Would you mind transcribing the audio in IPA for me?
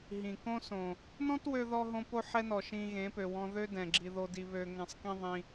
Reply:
ɦ ĩ˨ k õ˦ s õ˨ | n ɔ̃˦ t w ø˧ ð ɔ˧ ɦ õ˦ p o˦ ħ ɛ˦ n ɔ˨ ʃ ĩ˧ ɣ ẽ˨˦ p ø˨ w ɔ̃˧ ð ø˦ d ɛ̃˨ ɡ͡ǁ i˧ ð o˧ d i˧ β ø˨ ŋ ɛ̃˨ sˤ k ĩ˧ ðˤ ĩ˧

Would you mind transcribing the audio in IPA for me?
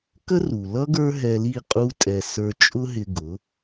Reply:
k ə˥ r u˩ l ʌ˥ ɡ ə˞˥ ɦ ɛ˧ l i˥˩ qʼ u˥ tʼ ɛ˧ s ə˞˧ t͡ʃʼ ʊ˥ ɦ ɪ˧ ɡ ʊ˩˥

